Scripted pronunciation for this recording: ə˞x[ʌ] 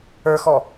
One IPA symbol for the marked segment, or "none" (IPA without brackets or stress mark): ɔ